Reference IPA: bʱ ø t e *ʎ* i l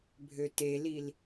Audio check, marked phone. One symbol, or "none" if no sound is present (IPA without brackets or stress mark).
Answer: l